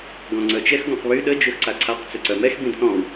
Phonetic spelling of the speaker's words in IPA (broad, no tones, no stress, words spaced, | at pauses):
ɡɔ̃ŋ͡ǀœt͡ʃɛx ɡɔ̃qβy ɗə d͡ʒøxǀaǀʰaq t͡søǀœmɛx bĩdθɔ̃w